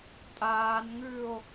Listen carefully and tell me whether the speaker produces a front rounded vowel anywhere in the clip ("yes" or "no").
no